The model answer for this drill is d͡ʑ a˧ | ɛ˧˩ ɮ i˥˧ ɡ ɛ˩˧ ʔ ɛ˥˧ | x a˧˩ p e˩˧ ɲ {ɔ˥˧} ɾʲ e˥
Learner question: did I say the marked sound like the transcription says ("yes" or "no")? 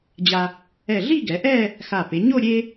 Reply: no